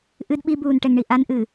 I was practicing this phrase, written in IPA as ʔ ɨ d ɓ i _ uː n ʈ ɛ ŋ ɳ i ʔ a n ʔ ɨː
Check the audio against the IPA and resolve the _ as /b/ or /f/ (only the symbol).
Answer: b